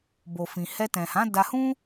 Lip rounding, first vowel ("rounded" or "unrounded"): rounded